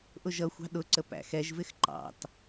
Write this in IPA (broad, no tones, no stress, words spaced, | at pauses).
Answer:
ʔʊʒʌxʷɑ̤ ɗʊǀə pæ̰xɛʒvɪx ǃɑ̰t